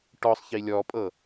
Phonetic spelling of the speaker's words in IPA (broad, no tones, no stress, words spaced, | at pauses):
ʈɔsˤ çilʲɔpʼɤ